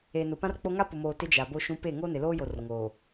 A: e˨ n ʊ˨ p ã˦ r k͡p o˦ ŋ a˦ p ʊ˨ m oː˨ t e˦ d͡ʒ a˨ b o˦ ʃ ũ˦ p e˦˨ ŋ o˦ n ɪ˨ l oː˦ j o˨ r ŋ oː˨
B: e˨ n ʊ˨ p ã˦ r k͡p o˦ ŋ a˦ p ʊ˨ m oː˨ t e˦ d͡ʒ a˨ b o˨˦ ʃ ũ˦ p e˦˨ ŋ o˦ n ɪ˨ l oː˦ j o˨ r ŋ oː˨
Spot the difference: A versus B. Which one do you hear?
A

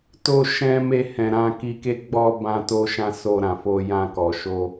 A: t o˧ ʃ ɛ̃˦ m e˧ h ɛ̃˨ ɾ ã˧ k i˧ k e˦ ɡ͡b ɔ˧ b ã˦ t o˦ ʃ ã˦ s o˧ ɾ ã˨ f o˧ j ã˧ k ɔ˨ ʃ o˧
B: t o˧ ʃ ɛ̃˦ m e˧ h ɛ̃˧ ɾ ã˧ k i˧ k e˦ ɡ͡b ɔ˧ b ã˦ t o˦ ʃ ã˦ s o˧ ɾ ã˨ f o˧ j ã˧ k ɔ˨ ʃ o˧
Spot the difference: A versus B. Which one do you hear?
A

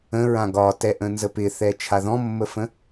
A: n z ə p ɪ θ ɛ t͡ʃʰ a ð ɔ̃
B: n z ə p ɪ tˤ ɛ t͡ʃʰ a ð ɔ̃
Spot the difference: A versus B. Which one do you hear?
A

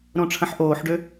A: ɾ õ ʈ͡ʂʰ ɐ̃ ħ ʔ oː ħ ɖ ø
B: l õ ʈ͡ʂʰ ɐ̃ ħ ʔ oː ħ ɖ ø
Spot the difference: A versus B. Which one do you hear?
A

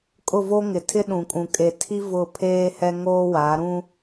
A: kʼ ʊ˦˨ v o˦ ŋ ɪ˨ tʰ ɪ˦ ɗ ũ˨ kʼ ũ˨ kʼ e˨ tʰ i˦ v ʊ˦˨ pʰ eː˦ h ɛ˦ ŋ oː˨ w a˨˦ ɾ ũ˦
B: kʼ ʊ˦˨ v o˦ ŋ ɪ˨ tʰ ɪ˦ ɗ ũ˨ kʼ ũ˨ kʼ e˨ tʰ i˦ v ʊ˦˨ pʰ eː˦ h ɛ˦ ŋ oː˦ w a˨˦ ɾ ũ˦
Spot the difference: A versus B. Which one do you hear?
B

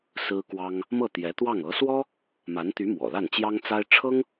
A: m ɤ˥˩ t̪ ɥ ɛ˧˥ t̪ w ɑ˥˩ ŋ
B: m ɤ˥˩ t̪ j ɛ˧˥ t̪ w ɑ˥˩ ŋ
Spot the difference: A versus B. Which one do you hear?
B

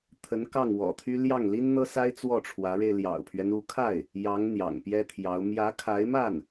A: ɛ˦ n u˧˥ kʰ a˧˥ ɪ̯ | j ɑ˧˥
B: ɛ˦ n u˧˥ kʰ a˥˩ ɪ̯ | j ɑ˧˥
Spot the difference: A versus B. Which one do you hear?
B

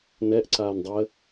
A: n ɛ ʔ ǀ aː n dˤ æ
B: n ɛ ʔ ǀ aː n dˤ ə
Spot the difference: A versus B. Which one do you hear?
B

